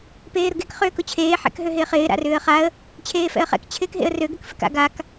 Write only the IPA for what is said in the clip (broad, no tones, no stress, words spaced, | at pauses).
peːɾʊɡek χʏːkʊt͡ɕʰeː ħɛ̰kɦøɦɪːχɪː ɾa̰rʏːə̯χaə̯ | t͡ɕʰeːfɛ̰ə̯χɛ̰k t͡ɕʰɪːkɦḛə̯rø ɡʏkfɪka̰ ɡak